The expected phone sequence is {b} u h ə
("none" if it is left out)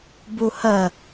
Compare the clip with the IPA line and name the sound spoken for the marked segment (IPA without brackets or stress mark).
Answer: b